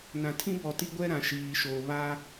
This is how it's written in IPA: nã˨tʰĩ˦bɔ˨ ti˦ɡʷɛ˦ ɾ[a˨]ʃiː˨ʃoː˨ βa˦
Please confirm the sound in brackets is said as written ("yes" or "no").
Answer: no